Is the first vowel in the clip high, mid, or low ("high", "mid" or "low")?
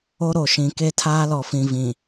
mid